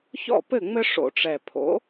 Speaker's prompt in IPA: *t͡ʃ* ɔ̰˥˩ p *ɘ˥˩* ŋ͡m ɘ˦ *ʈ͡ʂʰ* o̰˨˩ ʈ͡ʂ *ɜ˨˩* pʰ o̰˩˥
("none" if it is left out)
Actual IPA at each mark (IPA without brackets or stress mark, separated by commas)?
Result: ç, ɘ˥˩, ʂ, ɛ˨˩